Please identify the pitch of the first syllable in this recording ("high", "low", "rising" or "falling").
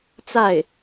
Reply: falling